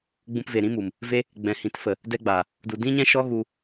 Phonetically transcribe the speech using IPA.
ɡ͡bũ˧pve˨ɾĩ˦mu˨m | ve˦ | ɡ͡bɛ̃˨hĩ˨˦tfə˨ | dɛ˦ɡ͡ba˨ | du˨ dĩ˦ɲɛ̃˦ʃɔ˦ ɣu˧

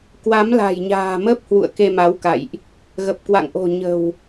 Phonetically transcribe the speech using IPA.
kwa˨˦mla̤˨˩jɲa̤ː˨˩mə˦˥p̚ hwṵ˧˨ə̯ke˧ ma˨˦wka̰˧˨jʔ | ɣə˨˩p̚ kwa̰˧˨ŋʔo̤˨˩ ɲə̤˨˩w

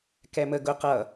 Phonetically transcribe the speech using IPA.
kɛmə ɡʊ qʌ

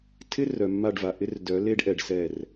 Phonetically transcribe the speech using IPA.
tʰɪ˦ rœ˨mːa˦˨ɖva˨ʔɪ˦r dœ˨˦ le˦ɖʔɛ˨ɖ sɛ˦˨r

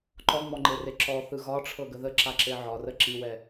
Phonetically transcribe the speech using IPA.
ǃɔŋ͡mɔŋ͡ǃere ǁɔθɯ ɣɒʈ͡ʂʰɤɡə ðəǁaǁe ʕɒrə ǁiwɛ

